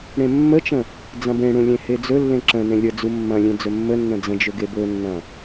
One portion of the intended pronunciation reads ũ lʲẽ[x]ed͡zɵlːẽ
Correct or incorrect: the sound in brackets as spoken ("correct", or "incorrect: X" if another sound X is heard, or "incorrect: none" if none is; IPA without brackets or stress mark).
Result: incorrect: h